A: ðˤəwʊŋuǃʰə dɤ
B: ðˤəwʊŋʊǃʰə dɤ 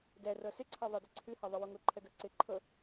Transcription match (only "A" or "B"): B